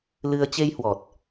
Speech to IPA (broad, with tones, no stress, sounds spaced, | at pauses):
l ɨ˧ ə̯ t͡ɕ e˧ j h w ɔ˨˩ t̚